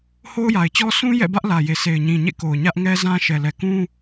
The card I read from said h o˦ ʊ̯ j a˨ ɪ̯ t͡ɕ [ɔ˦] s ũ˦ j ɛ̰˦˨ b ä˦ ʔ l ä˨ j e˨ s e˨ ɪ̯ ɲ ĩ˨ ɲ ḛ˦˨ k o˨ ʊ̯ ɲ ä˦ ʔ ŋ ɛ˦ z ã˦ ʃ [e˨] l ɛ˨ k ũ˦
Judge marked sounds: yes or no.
yes, no

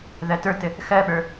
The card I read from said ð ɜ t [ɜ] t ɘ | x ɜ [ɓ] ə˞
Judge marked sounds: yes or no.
no, yes

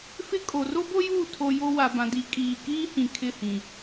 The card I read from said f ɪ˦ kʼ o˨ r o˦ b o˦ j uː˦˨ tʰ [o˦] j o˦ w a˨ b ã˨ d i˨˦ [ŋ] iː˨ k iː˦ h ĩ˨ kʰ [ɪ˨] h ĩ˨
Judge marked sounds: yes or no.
yes, no, no

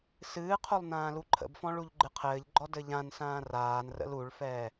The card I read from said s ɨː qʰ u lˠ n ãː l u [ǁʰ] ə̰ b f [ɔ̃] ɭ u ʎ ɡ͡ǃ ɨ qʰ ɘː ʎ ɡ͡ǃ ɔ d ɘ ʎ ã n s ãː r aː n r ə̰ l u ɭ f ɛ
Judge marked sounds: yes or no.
no, yes

